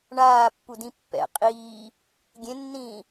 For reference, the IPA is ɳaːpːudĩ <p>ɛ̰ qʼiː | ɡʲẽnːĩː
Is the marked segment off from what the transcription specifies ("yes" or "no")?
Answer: yes